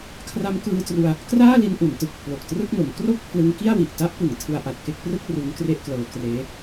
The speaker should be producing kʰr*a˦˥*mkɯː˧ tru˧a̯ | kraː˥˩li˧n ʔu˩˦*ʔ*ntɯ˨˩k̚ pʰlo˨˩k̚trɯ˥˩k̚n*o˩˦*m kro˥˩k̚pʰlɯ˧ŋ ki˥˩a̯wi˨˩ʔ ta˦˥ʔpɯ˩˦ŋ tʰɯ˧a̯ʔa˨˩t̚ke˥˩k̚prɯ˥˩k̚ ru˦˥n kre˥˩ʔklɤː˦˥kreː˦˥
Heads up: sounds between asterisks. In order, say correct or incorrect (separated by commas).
correct, incorrect, correct